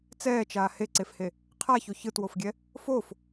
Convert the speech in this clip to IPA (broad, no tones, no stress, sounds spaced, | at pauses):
t͡s ɛː t͡ʃ aː h e ǀ e f h e | qʰ a ç o ç ɯ t w o f ɡʲ ɛ | f o f